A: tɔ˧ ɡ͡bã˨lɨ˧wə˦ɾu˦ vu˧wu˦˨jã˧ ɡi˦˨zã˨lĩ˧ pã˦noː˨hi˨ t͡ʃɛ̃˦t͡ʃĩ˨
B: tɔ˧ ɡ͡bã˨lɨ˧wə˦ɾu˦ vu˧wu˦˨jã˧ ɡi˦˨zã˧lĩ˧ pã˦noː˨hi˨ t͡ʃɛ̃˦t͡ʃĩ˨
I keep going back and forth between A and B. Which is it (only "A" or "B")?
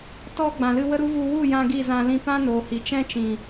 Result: B